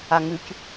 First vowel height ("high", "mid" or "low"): low